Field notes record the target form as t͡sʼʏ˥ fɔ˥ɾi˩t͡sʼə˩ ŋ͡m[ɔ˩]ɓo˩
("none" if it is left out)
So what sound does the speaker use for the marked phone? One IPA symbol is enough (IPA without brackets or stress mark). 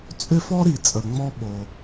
ɔ˥